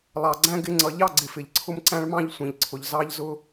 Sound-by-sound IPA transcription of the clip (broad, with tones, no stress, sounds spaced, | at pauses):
lˠ ɑ˨ ɡ͡ǀ æ̃˦ ɡ ɪ˦ ŋ͡ǀ ʌ˨ ʎ ɑ˦ ɡ͡ǀ ɪ˨ f ɪ˨ ʎ ǀʰ ʊ˦ m ǀ æ̃˦ ɭ m ɑ̃˦ ʎ sʷ ĩ˨ ʎ ǀʰ ʊ˨ ʎ z ɑ˦ ʎ z ʊ˦